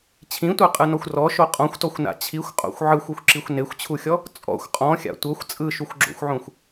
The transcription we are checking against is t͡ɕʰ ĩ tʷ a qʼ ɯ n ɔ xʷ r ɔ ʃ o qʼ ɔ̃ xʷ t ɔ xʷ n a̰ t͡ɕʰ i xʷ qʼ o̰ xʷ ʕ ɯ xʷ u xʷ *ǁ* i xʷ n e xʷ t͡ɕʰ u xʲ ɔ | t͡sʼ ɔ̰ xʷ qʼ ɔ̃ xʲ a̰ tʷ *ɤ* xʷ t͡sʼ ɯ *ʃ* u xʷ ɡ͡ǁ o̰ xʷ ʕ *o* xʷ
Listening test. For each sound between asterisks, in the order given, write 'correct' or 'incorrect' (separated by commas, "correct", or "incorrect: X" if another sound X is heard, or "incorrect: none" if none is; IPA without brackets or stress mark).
correct, correct, correct, incorrect: õ